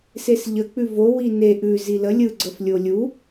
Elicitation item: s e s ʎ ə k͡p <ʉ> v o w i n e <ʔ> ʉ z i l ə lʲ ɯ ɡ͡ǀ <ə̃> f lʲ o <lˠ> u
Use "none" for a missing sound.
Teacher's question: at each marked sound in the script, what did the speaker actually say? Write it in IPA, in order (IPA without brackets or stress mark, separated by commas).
ʉ, ʔ, ə, lʲ